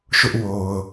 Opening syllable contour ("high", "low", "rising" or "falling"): high